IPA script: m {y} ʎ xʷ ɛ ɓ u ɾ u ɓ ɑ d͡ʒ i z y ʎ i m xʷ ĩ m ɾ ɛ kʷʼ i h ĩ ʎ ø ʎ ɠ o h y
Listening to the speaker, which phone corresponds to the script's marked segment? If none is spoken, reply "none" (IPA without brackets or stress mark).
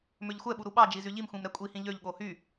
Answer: ø